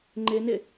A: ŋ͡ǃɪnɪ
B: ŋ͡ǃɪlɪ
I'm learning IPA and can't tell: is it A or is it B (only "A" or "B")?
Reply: A